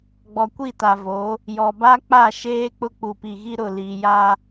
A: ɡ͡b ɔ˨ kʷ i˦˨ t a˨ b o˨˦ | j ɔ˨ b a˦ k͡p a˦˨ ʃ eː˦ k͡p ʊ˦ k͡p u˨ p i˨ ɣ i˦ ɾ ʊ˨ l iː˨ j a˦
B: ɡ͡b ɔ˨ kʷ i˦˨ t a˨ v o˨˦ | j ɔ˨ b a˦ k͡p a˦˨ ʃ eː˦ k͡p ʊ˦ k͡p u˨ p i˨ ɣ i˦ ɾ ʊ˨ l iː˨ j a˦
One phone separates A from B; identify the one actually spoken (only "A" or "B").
B